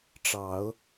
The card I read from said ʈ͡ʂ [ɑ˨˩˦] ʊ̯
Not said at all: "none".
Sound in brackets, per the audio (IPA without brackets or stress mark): ɑ˨˩˦